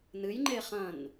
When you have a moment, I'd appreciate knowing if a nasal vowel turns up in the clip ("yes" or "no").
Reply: yes